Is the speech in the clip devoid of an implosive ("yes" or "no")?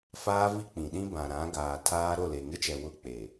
no